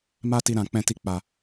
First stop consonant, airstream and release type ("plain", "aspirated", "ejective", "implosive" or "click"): plain